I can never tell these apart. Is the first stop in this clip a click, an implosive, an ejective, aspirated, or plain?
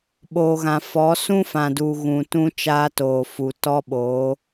implosive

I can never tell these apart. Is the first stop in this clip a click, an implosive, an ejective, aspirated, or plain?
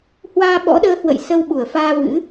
implosive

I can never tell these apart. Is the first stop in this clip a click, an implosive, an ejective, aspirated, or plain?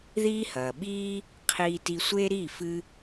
implosive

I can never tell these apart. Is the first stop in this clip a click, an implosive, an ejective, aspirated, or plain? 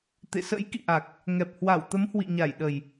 plain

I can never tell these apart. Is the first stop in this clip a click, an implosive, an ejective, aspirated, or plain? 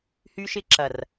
click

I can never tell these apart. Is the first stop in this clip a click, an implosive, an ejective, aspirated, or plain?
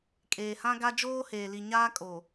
ejective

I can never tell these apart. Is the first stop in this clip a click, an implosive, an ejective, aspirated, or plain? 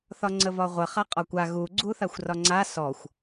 click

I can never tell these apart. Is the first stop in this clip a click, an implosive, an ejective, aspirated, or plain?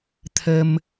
aspirated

